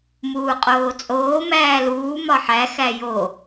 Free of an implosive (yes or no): yes